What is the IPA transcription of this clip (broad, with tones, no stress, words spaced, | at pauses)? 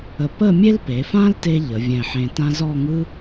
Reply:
ə˧ pə˥˧ mʲe˥lpe˩˧fã˥lte˧ ʎə˩˧vʲɛ̃˧˩ħẽ˧tã˥ zɔ˥˧ŋɯ˥